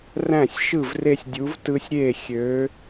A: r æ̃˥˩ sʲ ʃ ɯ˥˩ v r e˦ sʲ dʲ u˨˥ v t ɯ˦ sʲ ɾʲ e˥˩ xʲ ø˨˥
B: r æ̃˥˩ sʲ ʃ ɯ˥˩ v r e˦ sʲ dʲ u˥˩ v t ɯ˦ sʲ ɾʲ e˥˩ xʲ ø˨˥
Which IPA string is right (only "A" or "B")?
A